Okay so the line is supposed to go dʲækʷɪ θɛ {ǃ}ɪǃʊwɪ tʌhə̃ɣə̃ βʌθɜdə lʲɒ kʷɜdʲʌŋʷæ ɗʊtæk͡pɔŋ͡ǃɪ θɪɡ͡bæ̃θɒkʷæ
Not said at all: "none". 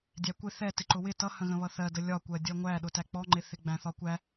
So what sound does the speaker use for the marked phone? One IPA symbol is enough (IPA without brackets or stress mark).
t